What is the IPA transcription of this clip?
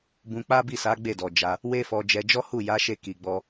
bũ˧k͡pa˦bi˦˨sa˨˦ ɡ͡be˦˨dɔ˨d͡ʒa˧ | we˦fɔ˧ d͡ʒɛ˧d͡ʒɔ˦hu˦˨ ja˨˦ʃe˧ ki˨ ɡ͡bɔ˧

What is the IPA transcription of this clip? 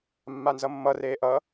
mːanzʌmːʌ reːʔʌ

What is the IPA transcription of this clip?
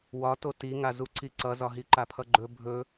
wɒto tiŋazu ǀiǀʌzɒ ɦiǃapʰʌɡ͡ǃɵ bʱɵ

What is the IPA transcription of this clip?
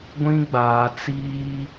ɡʷĩ˦ɡ͡baː˨ t͡siː˦

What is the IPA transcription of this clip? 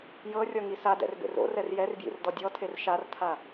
jɤrʲɔŋi sadɛ̰rbḛr o̰rɛr jɛrbjḭrdɔ dʲɔtʰer ʃartʰa

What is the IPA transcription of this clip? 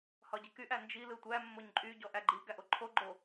hɒɟikyʔ ænd͡ʒi lɯtʷæ mːoɲǃʼy ɟɔʔæɡ͡ǃi ɡæʔoǃʰo ɡ͡ǃo

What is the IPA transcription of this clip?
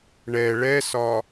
ɳɛ ɭɛsɒ

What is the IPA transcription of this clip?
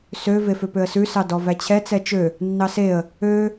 sø veføpøə̯sʉ sɑdɔvæt͡ɕʰɛ t͡sɛt͡ʃø | nːɑseə̯ | ø

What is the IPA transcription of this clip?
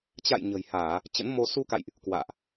t͡ɕa̰˧˨j ɲə̤˨˩jhaː˧˩˨ | t͡ɕə̰˧˥nmo˧ su˧ka̰˧˨jʔ | kwa̰ː˧˨ʔ

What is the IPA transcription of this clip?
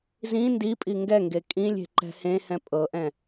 zĩ ndipʼi ŋɡɛŋɡe kʼĩlʲe̤ ǃɛ̤hẽhɛ̃ pʼɤʔɛ̃

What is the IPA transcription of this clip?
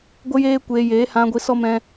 ɡʷə˦ jeː˦kʷeː˧ jeː˨˦hã˧ɡʷi˧ sɔ˦ mɛ̃˦

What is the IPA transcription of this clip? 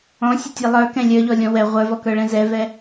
ɔ̃sʲətʲɛ lˠə˞kɛ̃ lʲə˞ʎɔlʲɔ̃ wɛ ʁʷə˞vɔkə˞ɭɛ̃ zɛvɛ

